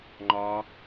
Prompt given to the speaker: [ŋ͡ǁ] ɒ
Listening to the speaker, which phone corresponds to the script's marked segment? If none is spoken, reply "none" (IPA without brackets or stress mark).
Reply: ŋ͡ǃ